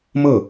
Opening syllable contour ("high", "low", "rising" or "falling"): falling